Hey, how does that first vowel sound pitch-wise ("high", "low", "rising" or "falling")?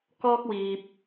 high